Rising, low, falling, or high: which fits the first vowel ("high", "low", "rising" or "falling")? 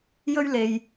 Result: high